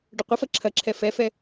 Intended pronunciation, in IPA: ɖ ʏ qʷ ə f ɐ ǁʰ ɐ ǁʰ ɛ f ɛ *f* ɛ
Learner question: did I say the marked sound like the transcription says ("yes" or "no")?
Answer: yes